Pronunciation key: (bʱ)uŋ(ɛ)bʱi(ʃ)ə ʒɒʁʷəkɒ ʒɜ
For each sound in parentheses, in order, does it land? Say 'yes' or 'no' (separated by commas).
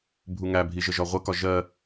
yes, no, no